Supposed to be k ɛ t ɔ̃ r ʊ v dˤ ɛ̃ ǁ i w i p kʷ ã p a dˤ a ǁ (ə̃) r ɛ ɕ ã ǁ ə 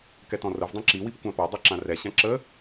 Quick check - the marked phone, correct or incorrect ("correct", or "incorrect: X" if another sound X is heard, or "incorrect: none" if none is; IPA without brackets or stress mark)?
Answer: incorrect: ã